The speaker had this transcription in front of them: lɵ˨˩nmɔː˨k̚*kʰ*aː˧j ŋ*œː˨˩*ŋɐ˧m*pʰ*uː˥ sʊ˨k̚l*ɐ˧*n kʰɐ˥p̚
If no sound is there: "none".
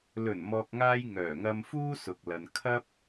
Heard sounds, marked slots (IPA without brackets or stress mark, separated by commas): ŋ, œː˨˩, f, ɐ˨